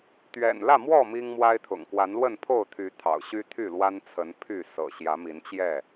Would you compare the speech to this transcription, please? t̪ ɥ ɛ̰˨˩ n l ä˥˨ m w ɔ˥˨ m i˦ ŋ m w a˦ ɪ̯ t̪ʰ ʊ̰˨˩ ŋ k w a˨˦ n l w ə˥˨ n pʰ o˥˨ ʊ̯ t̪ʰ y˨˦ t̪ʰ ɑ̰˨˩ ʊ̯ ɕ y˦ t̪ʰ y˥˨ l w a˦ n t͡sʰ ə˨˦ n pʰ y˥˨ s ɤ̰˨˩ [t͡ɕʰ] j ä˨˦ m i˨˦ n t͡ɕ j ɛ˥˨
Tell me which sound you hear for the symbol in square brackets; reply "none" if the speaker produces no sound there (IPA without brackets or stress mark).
ɕ